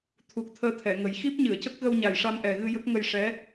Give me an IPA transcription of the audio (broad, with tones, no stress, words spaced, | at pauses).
t̪ʰu˨˩k̚ t̪ʰəː˧t̪ʰɛ˨˩˨ŋə˨˩˦j xi˦˥p̚ɲɨ˨˩˨ə̯cə˦˥k̚ɣə˧w ɲa˨˩jʂa˧mʔɛ˨˩ɣɨ˧ jə˦˥k̚ŋə˧j ʂɛ˧˥